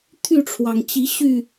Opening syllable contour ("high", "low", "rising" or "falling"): falling